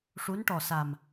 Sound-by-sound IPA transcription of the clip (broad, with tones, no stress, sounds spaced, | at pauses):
ʂ u˧˥ n ʈ ɔ˨˩ s a˨˩ m